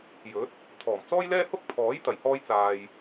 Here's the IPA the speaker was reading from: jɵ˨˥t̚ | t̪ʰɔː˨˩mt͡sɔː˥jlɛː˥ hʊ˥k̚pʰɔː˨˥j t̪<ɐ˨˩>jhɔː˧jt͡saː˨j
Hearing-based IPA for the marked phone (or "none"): ɐ˨˩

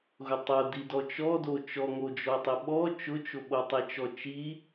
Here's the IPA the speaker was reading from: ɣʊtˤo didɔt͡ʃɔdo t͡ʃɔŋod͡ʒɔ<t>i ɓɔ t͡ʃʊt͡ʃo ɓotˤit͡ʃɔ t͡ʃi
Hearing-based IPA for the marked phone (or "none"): tˤ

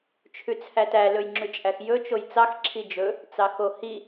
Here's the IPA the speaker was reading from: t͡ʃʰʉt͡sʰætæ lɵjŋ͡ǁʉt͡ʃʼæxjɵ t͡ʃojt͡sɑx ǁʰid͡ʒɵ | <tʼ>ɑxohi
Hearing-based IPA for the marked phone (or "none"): t͡s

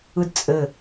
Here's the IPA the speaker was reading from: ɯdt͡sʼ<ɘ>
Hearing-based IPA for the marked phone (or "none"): ɘ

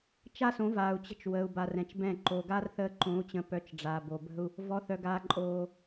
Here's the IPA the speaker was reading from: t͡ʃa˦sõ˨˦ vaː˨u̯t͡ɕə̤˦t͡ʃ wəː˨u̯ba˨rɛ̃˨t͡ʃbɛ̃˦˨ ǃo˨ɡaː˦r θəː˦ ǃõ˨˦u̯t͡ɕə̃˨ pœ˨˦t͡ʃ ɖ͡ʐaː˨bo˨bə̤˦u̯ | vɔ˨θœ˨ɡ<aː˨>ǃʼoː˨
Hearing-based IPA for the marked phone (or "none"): aː˨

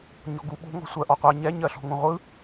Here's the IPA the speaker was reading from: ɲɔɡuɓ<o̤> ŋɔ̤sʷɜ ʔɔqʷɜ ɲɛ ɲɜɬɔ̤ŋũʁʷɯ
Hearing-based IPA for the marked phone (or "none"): o̤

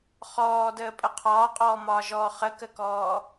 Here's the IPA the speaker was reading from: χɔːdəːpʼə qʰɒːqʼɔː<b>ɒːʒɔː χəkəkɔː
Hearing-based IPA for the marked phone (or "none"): m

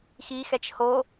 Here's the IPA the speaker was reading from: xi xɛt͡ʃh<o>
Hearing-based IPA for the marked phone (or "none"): o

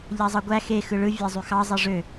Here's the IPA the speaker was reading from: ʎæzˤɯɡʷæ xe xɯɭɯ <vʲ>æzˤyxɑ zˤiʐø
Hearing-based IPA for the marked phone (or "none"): vʲ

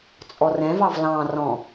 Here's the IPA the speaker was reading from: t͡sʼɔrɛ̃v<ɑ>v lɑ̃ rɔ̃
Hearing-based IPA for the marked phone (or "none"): ɑ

